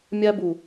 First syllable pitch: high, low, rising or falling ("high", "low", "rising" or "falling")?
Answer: high